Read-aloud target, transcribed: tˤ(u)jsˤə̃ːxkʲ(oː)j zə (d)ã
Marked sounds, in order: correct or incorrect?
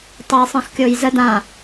incorrect: o, correct, correct

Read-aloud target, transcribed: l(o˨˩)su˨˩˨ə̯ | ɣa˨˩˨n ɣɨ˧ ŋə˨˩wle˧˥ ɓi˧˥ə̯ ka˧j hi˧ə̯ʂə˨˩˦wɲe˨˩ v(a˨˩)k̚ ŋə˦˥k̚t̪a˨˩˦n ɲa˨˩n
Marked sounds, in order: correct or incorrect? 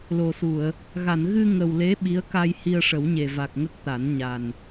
correct, correct

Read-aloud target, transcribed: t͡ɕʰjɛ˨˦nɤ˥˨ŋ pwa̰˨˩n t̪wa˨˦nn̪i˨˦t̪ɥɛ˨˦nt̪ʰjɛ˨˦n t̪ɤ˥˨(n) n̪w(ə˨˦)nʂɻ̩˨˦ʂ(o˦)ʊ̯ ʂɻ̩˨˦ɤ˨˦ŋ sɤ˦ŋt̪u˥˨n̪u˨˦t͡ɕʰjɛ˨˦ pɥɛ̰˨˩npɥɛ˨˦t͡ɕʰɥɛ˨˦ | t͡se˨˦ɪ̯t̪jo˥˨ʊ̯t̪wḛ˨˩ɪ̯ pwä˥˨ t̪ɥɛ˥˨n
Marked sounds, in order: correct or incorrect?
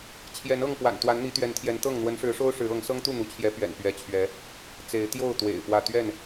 incorrect: ŋ, correct, correct

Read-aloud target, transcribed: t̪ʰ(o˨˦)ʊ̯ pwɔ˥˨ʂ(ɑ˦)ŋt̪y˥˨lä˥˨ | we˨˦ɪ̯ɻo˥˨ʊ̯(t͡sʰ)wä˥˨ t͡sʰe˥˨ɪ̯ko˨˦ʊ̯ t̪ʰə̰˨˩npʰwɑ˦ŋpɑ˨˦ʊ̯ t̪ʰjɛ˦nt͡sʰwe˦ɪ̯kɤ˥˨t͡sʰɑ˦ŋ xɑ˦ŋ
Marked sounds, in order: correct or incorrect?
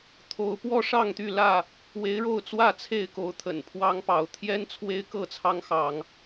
correct, incorrect: ɑ˥˨, incorrect: t͡s

